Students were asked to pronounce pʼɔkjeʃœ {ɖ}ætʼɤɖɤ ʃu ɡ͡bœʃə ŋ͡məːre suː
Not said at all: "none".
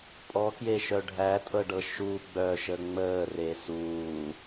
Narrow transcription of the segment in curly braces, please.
ɖʱ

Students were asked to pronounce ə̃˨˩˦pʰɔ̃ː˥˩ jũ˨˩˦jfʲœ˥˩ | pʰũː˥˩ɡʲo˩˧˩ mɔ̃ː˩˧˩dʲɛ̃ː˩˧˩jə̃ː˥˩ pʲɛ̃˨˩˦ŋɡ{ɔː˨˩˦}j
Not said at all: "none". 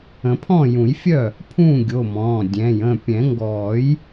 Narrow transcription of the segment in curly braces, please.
ɔː˨˩˦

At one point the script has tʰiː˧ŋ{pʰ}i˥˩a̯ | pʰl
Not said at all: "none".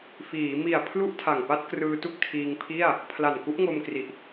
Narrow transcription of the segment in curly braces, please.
pʰ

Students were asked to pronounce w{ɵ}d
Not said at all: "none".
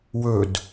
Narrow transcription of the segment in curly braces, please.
ɵ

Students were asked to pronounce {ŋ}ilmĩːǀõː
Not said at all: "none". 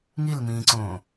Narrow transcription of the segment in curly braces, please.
ŋ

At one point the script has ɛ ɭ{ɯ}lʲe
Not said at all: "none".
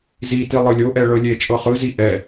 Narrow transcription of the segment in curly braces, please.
ɤ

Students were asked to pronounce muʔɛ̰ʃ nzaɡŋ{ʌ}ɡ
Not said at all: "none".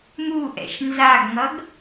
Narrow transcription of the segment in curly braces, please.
ʌ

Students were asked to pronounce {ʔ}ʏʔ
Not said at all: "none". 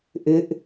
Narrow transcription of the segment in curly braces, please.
ʔ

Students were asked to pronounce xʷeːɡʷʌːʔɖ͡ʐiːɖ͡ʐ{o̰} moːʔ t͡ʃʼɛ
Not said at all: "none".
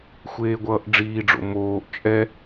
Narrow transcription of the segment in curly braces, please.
o̰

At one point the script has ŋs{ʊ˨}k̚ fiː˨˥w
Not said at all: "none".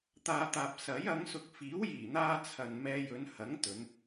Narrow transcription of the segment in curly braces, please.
ʊ˨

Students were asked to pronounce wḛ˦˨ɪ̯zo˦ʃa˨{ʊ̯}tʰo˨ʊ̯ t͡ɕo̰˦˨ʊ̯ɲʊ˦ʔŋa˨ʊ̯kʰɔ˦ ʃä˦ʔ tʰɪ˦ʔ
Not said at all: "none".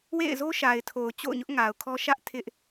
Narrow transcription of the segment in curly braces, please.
ɪ̯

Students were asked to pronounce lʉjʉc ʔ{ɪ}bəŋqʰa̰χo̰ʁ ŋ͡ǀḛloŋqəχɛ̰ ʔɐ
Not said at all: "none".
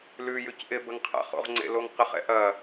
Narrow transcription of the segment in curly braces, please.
ɪ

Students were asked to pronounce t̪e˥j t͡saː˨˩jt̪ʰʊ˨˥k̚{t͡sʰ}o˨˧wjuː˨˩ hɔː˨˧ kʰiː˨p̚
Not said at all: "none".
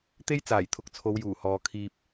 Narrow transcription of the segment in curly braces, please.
t͡sʰ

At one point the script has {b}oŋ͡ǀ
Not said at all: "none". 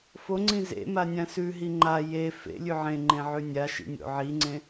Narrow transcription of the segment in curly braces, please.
f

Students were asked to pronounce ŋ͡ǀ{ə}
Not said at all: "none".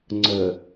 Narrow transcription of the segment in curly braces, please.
ə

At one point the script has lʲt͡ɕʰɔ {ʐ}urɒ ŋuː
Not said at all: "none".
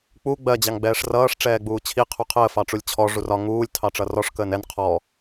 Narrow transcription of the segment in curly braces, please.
ʐ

